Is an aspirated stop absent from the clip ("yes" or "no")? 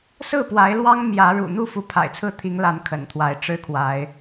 no